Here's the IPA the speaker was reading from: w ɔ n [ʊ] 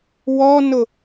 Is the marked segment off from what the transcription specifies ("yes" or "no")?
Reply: no